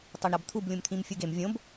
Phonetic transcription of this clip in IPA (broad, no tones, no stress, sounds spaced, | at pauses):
tˤ o ɳ ɾ ɒ b t̪ʰ u b lʲ ũ m t̪ʰ ĩ m fʲ u ɡ e m vʲ õ b